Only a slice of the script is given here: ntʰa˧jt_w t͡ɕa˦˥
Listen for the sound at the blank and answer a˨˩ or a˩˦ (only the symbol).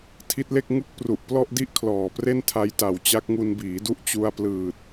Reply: a˨˩